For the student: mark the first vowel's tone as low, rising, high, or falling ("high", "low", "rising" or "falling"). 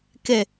low